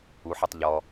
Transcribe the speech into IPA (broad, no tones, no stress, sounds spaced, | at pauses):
u ħ ɔ tˤ ʎ ɔ